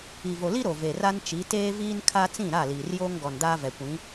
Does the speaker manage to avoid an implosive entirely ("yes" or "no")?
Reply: yes